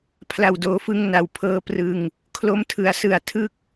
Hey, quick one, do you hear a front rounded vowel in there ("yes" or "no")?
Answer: no